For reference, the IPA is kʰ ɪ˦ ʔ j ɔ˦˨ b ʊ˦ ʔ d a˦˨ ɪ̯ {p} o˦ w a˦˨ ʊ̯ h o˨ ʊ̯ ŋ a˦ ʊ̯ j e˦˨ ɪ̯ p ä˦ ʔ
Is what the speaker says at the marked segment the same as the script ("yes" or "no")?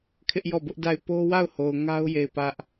yes